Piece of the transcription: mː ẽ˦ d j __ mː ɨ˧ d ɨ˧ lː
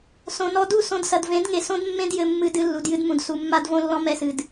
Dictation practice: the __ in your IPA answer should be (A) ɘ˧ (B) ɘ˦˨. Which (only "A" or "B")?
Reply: A